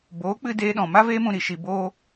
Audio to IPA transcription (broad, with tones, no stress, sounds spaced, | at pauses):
b oː˨˦ k͡p ɨ˧ d eː˧ ɗ ɔ̃˨ m a˦ v eː˦ m ũ˧ ɾ i˨ ʃ i˧ b oː˦